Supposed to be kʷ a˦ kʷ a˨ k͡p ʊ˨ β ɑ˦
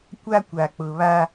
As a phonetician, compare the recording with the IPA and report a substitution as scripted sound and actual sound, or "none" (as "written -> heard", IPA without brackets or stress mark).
ɑ˦ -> a˦